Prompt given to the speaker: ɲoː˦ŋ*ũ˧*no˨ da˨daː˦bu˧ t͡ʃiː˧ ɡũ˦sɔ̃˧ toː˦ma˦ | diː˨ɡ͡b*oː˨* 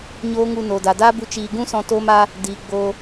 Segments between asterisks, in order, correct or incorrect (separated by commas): incorrect, incorrect